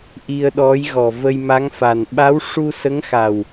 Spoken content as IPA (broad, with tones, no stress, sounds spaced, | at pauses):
ʔ i˧ ə̯ ɗ ɔ˧˥ j ɣ ɔ˨˩ v ə˧ j m a˧˥ ŋ f a˨˩ n ɓ a˧˥ w ʂ u˧ s ə˧˥ ŋ x a˨˩ w